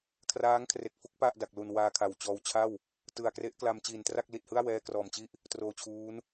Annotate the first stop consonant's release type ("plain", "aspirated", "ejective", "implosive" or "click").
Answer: aspirated